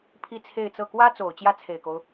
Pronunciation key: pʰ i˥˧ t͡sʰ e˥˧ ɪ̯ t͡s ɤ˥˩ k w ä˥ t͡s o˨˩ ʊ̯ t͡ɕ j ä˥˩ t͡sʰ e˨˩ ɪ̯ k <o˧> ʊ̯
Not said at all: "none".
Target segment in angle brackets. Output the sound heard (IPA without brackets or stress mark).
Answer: o˦